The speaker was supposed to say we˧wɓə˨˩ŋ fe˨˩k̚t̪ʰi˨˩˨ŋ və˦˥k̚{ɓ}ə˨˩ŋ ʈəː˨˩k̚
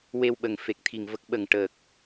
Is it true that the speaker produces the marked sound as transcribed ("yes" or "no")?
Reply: yes